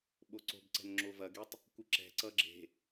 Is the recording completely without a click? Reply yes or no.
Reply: no